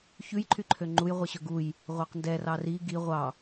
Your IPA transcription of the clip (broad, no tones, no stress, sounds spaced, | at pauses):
ç ʉ j ǃʰ y ǃʰ ø ŋ͡ǃ u j ʁʷ i ɕ ɵ ɡ u j | ʁʷ ɑ q n d ɛ r ɑ r i ɡ i ʁʷ ɑ